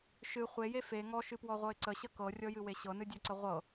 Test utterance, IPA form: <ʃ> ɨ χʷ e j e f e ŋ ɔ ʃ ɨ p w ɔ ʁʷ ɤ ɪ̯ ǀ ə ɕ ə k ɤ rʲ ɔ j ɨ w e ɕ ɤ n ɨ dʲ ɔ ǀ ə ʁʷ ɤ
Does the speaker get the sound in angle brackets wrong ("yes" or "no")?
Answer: no